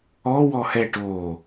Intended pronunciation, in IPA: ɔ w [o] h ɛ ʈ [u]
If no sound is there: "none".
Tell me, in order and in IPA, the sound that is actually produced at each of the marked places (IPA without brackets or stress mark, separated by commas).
ɔ, o